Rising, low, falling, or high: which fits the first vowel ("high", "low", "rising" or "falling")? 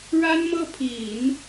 high